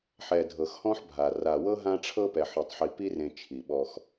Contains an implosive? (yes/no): yes